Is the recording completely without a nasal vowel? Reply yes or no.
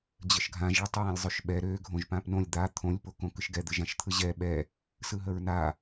no